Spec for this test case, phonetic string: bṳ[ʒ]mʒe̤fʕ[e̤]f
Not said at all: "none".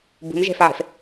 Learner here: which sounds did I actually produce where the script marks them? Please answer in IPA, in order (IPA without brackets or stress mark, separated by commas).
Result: none, e̤